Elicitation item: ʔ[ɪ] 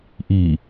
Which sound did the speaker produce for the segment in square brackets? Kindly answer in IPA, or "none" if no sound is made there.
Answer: i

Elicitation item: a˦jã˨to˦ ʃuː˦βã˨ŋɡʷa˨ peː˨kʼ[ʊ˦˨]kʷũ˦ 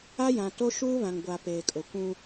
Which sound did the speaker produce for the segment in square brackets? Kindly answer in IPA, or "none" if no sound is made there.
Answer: ʊ˨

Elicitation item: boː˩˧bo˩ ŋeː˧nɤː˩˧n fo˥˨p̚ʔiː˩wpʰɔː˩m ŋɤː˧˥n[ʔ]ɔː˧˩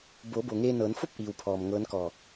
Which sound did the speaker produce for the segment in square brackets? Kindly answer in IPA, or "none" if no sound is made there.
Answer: k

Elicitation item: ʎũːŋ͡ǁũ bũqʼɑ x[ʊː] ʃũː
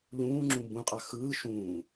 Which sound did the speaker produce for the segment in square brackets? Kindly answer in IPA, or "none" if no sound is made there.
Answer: ɯː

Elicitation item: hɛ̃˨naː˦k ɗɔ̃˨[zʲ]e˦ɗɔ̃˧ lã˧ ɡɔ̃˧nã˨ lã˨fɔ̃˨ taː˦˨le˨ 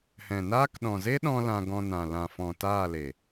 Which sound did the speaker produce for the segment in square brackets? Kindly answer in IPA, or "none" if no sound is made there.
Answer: z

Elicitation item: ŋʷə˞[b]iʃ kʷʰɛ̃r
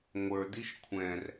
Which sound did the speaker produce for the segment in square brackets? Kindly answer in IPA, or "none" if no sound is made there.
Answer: d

